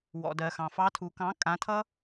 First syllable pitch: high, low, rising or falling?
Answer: low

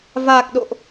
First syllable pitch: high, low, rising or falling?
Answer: low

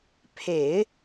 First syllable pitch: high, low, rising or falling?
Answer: low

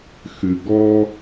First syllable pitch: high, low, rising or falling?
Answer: low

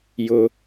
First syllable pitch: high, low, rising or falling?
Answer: low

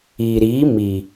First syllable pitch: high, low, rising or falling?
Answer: low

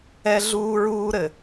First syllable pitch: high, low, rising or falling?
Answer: high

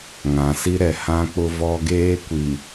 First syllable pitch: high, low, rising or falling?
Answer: low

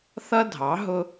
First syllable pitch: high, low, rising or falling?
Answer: high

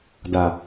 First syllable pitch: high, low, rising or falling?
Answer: low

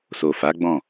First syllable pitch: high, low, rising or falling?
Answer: low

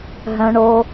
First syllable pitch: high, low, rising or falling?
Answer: low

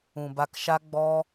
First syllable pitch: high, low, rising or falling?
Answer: low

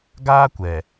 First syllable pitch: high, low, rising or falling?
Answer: high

